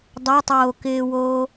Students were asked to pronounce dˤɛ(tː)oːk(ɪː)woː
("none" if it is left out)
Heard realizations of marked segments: tˤ, ɪː

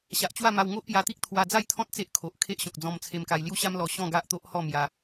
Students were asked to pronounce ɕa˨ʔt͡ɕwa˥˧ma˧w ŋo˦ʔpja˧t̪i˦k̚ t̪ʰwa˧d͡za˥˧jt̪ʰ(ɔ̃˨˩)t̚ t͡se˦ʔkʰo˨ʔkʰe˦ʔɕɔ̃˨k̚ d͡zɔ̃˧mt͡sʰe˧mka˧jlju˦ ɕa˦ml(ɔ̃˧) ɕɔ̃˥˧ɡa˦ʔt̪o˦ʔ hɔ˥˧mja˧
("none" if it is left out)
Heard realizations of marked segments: ɔ̃˦, ɔ˧

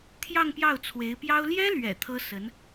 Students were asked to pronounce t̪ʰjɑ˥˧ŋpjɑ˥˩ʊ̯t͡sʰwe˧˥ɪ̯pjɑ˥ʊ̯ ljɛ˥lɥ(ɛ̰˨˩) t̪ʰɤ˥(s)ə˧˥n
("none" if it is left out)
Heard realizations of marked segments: ɛ̰˨˩, s

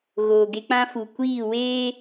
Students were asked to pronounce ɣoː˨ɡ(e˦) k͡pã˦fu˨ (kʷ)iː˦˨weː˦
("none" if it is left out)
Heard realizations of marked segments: e˦, kʷ

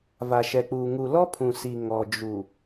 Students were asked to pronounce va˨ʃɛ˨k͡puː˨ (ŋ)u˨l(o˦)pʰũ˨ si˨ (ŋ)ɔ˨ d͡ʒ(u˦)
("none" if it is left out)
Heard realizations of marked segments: ŋ, ɔ˦, ŋ, u˨

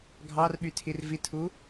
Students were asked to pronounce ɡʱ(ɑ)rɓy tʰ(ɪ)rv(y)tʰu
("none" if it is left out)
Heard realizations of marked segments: ɑ, i, i

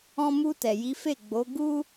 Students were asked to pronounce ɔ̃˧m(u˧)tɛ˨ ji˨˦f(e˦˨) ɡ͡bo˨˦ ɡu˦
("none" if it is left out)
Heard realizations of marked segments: u˧, e˦˨

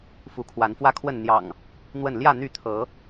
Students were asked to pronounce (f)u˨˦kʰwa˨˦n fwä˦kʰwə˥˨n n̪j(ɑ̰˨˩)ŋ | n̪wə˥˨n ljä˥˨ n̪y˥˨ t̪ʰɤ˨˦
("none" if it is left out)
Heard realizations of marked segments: f, ɑ̰˨˩

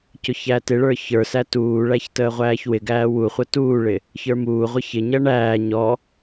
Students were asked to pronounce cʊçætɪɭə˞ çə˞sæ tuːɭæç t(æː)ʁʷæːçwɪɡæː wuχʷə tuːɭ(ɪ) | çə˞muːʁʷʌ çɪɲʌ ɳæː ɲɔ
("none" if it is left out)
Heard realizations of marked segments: əː, ɪ

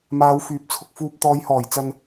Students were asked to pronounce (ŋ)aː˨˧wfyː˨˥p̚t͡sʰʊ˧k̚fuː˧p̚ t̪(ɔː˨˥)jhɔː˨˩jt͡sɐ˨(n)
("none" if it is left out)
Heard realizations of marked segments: m, ɔː˨˧, n

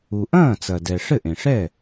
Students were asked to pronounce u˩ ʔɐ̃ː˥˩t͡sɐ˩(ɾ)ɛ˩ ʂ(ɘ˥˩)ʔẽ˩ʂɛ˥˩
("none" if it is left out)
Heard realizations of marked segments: d, ɘ˥˩

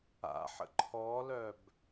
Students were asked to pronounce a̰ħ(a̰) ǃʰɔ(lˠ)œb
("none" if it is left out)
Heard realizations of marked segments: ə̰, l

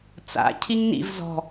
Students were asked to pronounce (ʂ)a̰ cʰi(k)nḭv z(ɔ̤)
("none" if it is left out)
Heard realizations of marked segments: t͡s, ŋ, ɔ̤

